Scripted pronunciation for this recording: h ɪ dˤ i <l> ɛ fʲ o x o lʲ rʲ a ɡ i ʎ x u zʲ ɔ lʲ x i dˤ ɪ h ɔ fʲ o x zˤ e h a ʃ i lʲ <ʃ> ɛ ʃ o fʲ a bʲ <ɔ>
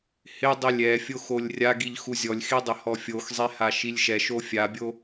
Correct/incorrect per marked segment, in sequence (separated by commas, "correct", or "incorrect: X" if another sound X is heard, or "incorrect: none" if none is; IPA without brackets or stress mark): incorrect: lʲ, correct, incorrect: o